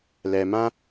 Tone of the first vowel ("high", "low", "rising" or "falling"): low